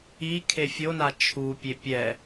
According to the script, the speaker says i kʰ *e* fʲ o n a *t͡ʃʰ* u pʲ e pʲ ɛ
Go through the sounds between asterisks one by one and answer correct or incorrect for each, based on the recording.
correct, correct

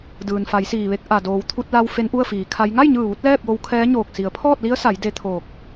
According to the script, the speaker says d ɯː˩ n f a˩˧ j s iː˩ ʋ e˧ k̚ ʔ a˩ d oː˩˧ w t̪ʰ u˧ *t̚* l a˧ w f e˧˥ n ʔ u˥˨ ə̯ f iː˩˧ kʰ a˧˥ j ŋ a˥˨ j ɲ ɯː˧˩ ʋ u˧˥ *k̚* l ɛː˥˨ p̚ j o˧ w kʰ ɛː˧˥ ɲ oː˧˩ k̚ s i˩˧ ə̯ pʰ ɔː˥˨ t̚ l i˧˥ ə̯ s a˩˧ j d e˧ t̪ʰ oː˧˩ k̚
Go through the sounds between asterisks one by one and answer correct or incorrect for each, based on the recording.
correct, incorrect

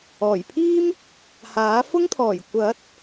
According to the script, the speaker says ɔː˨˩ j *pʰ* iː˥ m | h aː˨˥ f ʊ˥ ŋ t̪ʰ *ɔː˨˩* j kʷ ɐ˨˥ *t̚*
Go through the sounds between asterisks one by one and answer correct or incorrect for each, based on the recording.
correct, correct, correct

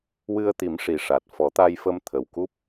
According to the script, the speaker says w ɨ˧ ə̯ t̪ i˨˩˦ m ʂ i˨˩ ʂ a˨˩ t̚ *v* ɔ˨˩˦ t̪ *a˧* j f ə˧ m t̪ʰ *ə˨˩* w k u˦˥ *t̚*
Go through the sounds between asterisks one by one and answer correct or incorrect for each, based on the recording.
incorrect, correct, correct, incorrect

